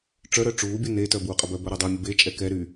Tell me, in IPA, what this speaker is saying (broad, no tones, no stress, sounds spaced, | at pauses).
ʈ͡ʂ œ ɾ œ ʈ͡ʂ uː bʲ u n e t œ b uː qʼ ə b œ b œ ɾ o dˤ y mʲ ə b e t͡ʃʼ ɛ k ɛ ɾ y